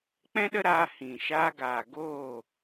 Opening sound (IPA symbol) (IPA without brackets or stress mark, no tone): k͡p